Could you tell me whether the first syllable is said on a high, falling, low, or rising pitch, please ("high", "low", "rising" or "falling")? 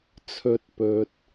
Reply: rising